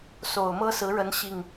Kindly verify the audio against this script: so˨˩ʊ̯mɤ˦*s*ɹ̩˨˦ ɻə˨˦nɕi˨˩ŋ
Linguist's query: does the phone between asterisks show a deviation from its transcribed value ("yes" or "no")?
no